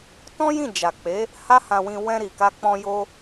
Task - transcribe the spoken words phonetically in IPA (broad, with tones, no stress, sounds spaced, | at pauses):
t ɔ̃˦ j ĩ˦˨ d͡ʒ a˨ k͡p e˨˦ | h a˦ h ã˧ w ĩ˧ w ɛ̃˧ ɾ i˨ k a˧ k͡p ɔ̃˧ j o˦